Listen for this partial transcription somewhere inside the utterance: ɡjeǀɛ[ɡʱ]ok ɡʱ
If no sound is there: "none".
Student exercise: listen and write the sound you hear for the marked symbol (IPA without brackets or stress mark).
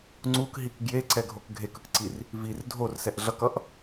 ɡʱ